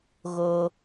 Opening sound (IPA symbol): ɣ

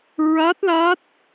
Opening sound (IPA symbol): ɹ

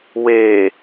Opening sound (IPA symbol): w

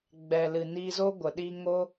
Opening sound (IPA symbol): ɡ͡b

